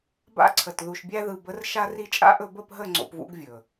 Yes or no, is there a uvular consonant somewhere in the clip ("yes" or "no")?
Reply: no